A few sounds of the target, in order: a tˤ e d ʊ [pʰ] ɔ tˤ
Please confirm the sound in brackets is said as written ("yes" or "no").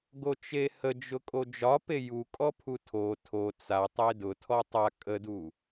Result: no